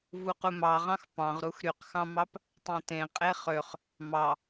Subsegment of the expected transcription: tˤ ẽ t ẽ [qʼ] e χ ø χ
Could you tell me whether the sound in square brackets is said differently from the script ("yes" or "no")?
no